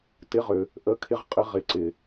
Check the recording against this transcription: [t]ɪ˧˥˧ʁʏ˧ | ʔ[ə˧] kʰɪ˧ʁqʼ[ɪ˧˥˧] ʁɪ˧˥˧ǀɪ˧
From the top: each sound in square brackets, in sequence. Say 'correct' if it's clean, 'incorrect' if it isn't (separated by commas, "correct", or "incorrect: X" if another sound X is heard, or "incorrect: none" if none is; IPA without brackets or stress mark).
correct, incorrect: ə˧˥˧, incorrect: ɪ˧